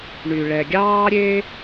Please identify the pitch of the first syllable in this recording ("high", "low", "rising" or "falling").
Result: low